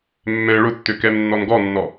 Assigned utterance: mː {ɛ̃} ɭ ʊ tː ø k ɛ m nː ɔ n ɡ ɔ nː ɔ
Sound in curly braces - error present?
no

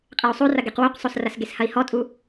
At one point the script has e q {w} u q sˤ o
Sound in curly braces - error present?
no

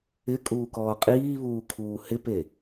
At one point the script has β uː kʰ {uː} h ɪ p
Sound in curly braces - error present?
no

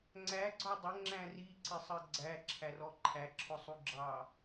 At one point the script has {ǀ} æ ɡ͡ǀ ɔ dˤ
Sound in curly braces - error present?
yes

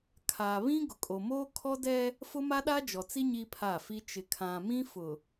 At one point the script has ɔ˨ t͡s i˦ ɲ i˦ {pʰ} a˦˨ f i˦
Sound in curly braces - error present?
no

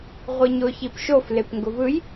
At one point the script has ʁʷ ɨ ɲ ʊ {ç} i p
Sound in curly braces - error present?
no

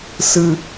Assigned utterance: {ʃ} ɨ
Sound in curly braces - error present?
yes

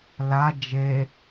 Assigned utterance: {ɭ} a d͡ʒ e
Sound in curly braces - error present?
yes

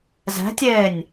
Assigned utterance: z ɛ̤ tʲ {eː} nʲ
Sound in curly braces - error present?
no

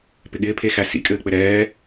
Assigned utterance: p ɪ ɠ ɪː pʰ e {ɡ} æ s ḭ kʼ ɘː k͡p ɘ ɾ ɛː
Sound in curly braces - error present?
yes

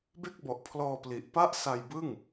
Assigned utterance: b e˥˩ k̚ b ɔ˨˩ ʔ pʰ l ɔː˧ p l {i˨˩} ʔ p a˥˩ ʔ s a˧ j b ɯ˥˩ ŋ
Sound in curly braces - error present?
no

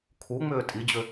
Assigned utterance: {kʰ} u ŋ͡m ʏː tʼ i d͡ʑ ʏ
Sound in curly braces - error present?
no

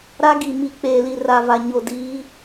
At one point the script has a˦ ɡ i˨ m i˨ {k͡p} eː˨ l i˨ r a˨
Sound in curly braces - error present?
no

